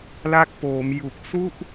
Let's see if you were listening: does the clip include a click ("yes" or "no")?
no